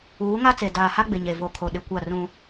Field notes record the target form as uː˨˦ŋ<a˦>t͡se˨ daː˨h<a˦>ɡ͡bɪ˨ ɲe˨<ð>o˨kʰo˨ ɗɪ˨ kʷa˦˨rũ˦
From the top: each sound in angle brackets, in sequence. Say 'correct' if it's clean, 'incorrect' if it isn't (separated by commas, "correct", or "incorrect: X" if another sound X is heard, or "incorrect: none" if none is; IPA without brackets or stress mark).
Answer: correct, correct, incorrect: v